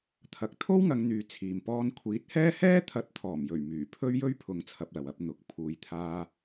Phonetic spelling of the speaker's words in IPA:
t̪ʰ ɐ˨˥ k̚ t̪ʰ o˥ w ŋ ɐ˨˧ ŋ n̪ yː˨ t͡sʰ iː˨ m p ɔː˧ n kʷʰ iː˨˥ t̚ h ɛː˥ h ɛː˥ t̪ʰ ɐ˨˥ t̚ t̪ʰ ɔː˨˩ m j ɵ˨˩ ɥ m yː˨˩ pʰ ɵ˥ ɥ j ɵ˥ ɥ pʰ ʊ˨˧ ŋ t͡sʰ ɐ˧ p̚ l ɐ˨ w ɐ˨˥ p̚ n̪ ʊ˨˥ k̚ pʰ uː˧ j t̪ʰ aː˥

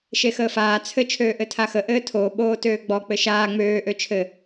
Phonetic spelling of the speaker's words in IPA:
ʃ e x əː f aː t͡sʰ ɘ t͡ʃʰ øː ʔ ɘ tʰ a x ə ʔ ɘː tʰ oː ɓ oː t øː ɡ͡b ɔ k͡p ɘ ʃ aː ŋ͡m øː ʔ ø t͡ʃʰ ɘ

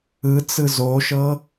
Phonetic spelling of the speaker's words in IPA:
ɯ t͡s ɯ z o ʃ ɤ

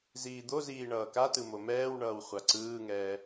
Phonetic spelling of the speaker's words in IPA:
z iː d̪ o z iː ɳ ʌː k a t ɯ m o m ɛː w ɳ ʌː w χʷ a ǀ ɯː ŋ ɛː

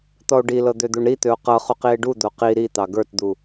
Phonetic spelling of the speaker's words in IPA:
t̪ ɔ o̯ ɖ i l ɤ d̪ ø d̪ u ɳ ɾ i t̪ ø o̯ q ɤ χ u q i e̯ ɖ u d̪ o q i ɾ i t̪ ɑ ɡ ə˞ t d̪ u

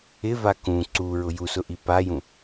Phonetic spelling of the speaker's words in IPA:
ɪ v a k ũ ǀ u ɹ ʊ j u s ʊ ʔ i p a j ũ

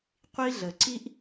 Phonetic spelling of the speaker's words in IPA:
qʷ i˦ ɮ ə˨ ǀ i˦ ʔ

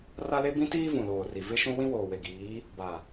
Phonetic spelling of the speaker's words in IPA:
r a˦ l e˦ b ĩ˦ t iː˦ v ũ˨ l oː˨ r i˨ v ɪ˦ ʃ ũ˦ w ĩ˦ w oː˨ w e˨ ɡ iː˨˦ | b a˨

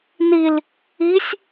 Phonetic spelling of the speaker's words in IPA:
n i l | i sʲ

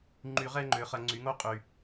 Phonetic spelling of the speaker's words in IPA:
ŋ͡ǃ y˧˩˧ ʁ ɛ˦ ŋ͡ǃ ø˩˧ χ ɐ˧˩˧ ŋ͡ǀ y˩˧ ŋ o˦ qʼ y˩

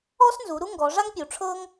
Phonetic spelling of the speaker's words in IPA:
ɔ˥ s n z u˩˧ ɾ u˥ ŋ ɡ ɔ˩˧ ʐ a˥ ŋ pʲ u˩˧ ʈ͡ʂʰ ɤ˥ ŋ

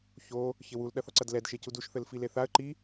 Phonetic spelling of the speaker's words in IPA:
ç o | ç ɘ w u l ɗ ɐ θ ɔ ǀ ɐ d l ɛ d ʃ e c u d u ʃ θ ɘ l f i l e θ a ə̯ ǃ i

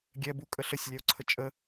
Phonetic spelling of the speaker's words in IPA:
ɡʲ ɛ b u kʼ ə ɬ ə sʲ lʲ ɛ o̯ ǀʰ ə t͡ʃʼ ə

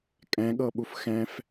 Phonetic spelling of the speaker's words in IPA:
kʼ ɛ̃ ɠ ɤ ɓ u f x ɛ̃ f

